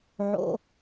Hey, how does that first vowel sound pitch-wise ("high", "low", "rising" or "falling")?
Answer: low